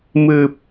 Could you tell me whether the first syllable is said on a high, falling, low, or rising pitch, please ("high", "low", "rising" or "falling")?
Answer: low